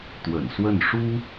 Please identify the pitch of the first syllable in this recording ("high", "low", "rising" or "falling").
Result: low